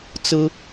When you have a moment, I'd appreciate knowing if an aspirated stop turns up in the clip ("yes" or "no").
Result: no